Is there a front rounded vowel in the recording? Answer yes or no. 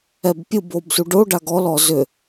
yes